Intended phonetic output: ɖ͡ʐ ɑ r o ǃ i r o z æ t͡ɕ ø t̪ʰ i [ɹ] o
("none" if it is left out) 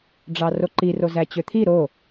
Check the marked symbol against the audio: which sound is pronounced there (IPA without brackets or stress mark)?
ɾ